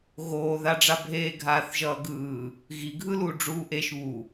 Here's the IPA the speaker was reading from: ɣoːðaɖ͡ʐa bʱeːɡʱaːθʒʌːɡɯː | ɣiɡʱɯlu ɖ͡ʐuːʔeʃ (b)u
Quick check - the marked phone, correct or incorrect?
incorrect